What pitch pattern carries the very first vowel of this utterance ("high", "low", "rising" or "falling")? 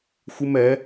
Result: high